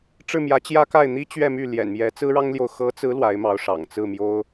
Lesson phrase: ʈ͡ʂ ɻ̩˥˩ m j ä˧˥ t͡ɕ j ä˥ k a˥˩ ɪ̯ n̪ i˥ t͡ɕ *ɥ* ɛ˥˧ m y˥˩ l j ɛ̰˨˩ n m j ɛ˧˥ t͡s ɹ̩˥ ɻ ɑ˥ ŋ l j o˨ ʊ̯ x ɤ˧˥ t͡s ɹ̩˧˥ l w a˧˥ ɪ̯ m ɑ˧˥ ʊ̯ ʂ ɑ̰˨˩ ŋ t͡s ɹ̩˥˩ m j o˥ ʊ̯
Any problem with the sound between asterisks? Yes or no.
no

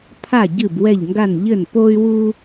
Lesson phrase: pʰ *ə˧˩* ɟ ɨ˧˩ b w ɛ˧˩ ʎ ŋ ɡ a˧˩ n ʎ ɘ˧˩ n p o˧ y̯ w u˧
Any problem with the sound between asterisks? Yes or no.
yes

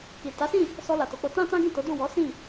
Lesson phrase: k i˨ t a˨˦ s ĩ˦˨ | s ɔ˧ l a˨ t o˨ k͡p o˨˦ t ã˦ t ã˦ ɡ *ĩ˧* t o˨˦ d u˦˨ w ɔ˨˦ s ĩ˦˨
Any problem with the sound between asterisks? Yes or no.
yes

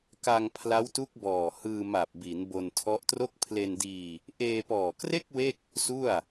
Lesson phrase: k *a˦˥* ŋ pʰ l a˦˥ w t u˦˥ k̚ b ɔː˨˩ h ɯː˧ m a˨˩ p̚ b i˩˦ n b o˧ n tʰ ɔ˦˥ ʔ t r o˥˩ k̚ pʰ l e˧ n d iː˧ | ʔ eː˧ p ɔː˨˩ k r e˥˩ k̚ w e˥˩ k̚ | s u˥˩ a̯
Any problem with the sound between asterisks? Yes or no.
yes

